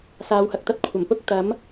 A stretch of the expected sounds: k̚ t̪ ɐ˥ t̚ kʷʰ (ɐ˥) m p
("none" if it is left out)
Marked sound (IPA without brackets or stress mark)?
ɐ˨˩